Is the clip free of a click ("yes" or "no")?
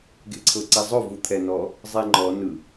no